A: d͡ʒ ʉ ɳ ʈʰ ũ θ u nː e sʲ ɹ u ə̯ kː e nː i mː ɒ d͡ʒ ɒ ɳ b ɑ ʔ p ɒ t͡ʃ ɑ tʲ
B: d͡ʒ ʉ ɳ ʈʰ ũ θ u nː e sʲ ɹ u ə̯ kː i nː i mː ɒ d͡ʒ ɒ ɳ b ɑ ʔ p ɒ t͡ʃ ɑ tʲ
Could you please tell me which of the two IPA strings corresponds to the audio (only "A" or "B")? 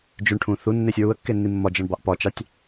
A